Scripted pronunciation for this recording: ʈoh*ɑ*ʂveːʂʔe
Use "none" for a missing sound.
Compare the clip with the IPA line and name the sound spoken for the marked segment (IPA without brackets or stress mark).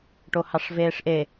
ɑ